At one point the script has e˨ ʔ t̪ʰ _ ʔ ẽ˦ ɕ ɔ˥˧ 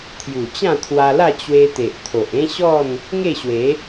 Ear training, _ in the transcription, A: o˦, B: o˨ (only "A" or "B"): B